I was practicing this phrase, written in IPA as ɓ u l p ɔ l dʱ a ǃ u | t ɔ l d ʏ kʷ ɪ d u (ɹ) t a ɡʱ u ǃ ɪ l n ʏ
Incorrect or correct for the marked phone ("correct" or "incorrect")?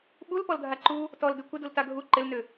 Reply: incorrect